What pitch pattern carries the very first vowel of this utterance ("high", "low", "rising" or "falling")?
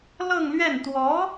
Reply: falling